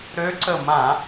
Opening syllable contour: rising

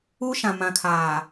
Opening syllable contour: high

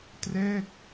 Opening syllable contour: falling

